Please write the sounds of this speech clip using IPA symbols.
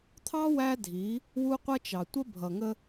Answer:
t̪ʰɑ˦ wæ˦dʱi˨˦ | wu˦qʷʌ˦t͡ʃɑ˨ tʷə˦bʱʌ˨ŋə˦

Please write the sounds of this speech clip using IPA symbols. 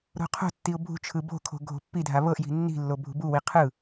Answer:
ɾo̤qʰo̤tːiʊ̯ bʱṳt͡ʃʰɯ bo̤kʰo̤ ɡʱo̤pːidʱa βɤʔji̤ nːi̤lːo bʱṳbuwi qʰɯ

